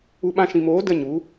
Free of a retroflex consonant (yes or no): yes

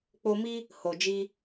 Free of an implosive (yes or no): yes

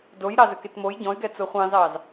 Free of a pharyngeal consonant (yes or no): yes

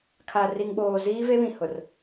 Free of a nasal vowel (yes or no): no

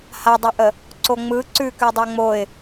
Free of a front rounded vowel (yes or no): yes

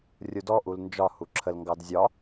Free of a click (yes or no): no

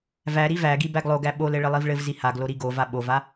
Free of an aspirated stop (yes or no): yes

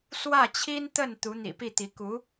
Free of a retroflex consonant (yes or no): yes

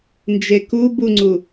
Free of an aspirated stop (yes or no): yes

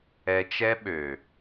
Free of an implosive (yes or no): no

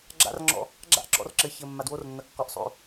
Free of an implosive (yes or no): yes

